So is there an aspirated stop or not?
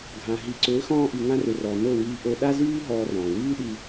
no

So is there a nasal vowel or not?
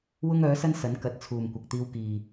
no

